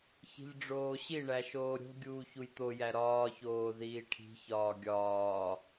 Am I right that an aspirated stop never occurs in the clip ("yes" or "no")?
no